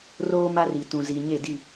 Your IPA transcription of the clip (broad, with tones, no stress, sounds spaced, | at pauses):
r oː˦ m a˦ r i˨ t ũ˨ z i˨ ɲ e˦˨ d i˦˨